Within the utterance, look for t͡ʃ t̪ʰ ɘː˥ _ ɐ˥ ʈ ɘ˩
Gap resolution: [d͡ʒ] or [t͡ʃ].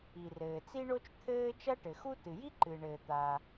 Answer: t͡ʃ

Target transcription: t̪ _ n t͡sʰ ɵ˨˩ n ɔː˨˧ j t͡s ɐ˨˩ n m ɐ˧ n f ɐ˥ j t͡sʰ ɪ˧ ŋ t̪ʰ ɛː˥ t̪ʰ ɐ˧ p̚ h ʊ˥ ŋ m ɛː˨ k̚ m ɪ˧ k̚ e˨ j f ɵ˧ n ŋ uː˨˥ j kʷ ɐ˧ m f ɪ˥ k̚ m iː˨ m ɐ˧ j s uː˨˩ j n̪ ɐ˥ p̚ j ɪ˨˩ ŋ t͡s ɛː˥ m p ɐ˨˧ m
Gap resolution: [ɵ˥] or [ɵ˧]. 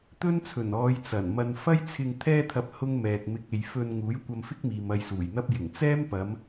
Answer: ɵ˥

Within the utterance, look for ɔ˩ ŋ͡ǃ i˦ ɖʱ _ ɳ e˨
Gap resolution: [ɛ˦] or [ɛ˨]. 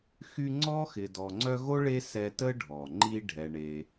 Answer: ɛ˨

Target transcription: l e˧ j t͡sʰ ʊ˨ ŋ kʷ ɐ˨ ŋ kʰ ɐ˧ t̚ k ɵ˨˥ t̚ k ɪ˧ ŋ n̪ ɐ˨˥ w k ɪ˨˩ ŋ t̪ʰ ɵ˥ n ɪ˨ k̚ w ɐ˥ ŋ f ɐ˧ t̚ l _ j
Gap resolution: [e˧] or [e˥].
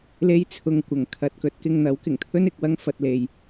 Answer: e˧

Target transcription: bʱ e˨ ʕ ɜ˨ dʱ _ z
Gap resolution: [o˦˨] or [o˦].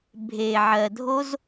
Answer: o˦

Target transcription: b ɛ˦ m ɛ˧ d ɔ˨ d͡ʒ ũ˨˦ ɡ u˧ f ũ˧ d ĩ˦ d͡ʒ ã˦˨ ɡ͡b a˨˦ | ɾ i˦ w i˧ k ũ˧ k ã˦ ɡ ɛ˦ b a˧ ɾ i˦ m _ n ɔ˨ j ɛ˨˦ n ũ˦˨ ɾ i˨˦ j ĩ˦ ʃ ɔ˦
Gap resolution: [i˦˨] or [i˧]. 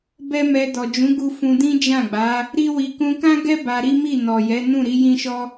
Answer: i˦˨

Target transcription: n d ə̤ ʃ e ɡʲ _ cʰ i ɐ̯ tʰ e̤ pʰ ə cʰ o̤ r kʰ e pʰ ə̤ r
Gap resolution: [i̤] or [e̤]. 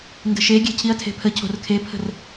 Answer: e̤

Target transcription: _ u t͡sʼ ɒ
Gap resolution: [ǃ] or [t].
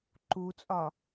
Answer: ǃ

